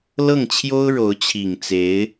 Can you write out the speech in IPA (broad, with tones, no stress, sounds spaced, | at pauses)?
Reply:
l ɤ˥˩ ŋ t͡ɕʰ j o˥ ʊ̯ ɻ o˧˥ ʊ̯ t͡ɕʰ i˨˩ ŋ t͡s e˧˥ ɪ̯